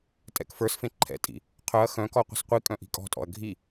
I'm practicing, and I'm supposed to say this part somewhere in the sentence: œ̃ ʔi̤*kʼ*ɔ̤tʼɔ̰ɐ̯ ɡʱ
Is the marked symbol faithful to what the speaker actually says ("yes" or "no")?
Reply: yes